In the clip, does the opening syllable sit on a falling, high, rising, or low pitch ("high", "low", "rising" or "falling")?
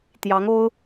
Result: rising